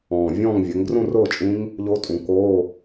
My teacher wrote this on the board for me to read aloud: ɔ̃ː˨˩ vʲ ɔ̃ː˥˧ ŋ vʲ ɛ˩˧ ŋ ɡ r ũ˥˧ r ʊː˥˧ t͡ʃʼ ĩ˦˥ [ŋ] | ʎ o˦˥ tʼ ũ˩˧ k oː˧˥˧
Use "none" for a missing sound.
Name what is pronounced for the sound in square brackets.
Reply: ŋ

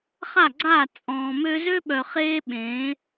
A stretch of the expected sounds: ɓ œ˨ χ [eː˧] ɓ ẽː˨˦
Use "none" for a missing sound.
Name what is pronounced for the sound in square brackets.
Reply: eː˦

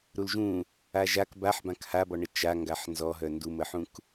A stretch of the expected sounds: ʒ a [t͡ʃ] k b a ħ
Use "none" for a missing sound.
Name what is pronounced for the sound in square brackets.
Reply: none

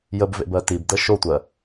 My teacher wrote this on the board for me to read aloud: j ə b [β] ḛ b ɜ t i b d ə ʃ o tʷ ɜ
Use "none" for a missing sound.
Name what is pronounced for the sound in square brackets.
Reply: v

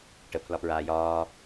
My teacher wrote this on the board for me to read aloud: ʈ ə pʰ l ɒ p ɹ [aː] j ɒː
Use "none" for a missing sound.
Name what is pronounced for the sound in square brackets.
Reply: aː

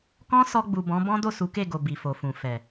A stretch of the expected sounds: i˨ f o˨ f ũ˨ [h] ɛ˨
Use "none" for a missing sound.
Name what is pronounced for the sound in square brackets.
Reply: f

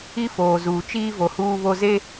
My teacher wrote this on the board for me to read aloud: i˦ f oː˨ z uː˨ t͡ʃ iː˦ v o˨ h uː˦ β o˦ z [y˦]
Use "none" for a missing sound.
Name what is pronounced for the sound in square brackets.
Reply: e˦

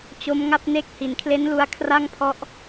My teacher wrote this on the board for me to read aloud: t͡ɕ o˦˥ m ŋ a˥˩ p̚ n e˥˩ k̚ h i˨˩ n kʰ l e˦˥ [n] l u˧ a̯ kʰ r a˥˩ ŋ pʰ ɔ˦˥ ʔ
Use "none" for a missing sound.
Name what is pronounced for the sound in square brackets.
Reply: n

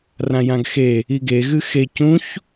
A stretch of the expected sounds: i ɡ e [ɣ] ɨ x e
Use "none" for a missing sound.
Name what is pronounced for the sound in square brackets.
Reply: ɣ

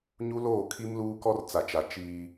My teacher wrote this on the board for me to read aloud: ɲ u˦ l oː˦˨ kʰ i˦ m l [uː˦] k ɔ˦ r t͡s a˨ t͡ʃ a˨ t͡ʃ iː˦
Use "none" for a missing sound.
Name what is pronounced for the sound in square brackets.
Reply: uː˦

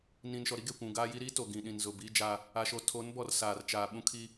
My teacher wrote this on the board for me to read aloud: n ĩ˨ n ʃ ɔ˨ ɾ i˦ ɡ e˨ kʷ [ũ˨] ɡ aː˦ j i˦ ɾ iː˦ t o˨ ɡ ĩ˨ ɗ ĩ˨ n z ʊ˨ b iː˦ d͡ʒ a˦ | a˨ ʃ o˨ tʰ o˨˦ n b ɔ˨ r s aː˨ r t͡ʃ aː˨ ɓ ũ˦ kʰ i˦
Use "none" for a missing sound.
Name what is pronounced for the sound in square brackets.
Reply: ũ˨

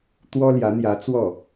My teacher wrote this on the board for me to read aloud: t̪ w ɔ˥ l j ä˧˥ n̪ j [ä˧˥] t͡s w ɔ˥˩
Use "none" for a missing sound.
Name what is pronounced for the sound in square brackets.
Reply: ä˧˥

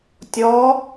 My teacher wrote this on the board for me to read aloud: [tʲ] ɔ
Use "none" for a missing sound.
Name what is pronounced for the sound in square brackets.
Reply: tʲ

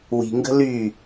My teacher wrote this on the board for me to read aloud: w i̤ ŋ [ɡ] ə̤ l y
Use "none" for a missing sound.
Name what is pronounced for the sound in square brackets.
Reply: ɡ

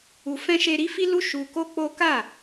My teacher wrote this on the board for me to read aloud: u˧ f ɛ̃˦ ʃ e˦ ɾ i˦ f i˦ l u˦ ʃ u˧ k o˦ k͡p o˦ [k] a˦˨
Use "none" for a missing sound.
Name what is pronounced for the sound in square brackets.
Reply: k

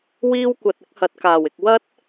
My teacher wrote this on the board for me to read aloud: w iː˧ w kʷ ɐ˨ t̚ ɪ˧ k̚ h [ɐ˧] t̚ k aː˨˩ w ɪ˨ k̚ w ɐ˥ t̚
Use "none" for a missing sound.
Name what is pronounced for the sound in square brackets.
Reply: ɐ˨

